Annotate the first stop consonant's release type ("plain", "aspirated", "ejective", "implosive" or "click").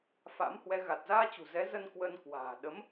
plain